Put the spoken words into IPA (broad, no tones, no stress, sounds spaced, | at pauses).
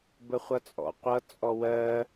b ə χʷ ʌ t͡sʼ ɔ̰ qʷ ʌ t͡sʼ ɔ w ɜ